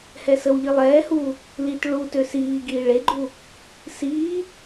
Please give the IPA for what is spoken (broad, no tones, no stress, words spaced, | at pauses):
hɛsəwʎi lˠɛːhuː | lit ɭu tøsiːɡiː ɭeɡ͡ǃu | siː